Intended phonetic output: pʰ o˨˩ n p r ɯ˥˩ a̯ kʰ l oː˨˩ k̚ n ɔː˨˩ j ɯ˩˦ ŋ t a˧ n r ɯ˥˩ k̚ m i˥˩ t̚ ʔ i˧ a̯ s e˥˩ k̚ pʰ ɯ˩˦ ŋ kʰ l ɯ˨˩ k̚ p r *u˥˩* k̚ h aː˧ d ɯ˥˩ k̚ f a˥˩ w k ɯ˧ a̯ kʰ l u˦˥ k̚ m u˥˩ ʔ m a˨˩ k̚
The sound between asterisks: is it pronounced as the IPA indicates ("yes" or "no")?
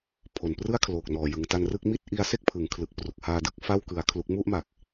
no